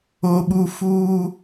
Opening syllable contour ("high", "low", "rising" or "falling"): high